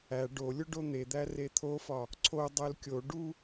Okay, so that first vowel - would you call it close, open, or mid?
open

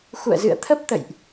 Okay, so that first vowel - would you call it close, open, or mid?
close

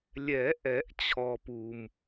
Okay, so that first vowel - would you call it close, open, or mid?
mid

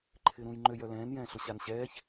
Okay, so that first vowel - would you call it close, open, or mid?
close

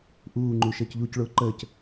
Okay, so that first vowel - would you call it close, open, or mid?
close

